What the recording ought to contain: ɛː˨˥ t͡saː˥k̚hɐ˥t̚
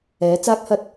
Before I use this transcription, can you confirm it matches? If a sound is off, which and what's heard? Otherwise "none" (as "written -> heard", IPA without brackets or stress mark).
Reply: none